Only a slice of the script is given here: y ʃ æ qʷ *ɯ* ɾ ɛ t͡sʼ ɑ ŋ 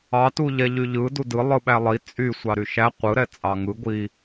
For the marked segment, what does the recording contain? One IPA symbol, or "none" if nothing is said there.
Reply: ɯ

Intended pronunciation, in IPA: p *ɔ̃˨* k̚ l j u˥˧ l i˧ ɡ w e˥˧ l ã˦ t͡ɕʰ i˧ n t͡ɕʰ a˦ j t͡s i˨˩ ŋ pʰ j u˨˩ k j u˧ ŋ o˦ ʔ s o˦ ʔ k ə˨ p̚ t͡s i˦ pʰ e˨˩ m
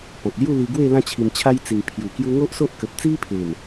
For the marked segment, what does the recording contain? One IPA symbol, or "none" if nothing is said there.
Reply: ɔ̃˨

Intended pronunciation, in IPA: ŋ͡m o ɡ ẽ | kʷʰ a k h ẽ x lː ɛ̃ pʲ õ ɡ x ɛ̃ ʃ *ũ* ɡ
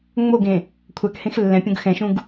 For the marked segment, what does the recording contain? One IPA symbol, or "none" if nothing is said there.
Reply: ũ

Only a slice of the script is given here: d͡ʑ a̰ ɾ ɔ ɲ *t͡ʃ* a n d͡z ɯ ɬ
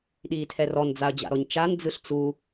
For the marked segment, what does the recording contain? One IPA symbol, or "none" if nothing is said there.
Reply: t͡ʃ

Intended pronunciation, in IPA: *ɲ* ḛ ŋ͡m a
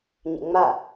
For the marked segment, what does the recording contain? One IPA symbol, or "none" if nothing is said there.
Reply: ɲ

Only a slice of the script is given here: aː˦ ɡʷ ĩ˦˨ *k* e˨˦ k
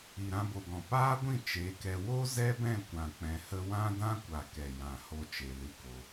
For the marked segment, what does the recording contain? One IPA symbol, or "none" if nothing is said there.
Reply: t͡ʃ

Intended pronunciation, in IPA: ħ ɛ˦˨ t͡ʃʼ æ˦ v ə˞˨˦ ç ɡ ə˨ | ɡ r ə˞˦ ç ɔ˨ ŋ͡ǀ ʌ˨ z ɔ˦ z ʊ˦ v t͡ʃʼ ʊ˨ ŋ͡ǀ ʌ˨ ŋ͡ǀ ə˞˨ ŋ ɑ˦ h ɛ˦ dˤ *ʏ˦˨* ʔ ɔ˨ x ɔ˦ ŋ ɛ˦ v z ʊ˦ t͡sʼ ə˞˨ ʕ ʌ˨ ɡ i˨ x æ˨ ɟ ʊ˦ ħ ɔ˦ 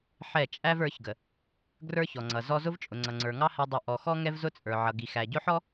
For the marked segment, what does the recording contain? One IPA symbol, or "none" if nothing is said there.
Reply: ɪ˦˨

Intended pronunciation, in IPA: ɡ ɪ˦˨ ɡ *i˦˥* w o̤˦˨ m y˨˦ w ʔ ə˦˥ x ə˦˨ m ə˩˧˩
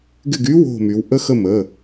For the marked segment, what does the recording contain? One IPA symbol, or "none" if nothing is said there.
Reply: y˦˥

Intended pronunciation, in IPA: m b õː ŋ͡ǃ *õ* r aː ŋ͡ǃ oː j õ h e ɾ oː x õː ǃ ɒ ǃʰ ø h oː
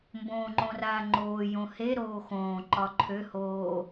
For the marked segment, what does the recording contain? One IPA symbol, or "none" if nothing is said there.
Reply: õ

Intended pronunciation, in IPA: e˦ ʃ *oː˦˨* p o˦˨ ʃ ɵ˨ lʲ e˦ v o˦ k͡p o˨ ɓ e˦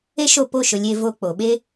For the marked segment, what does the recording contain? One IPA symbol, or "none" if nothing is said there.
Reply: o˦˨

